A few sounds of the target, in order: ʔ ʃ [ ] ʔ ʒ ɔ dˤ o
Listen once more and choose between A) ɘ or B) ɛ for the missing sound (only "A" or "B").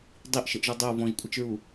A